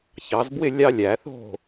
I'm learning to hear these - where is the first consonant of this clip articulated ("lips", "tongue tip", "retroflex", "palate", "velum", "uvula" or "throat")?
palate